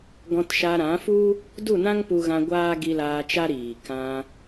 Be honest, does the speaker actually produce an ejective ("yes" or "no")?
no